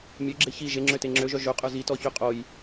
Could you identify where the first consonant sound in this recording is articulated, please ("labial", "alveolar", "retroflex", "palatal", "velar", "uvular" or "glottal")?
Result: labial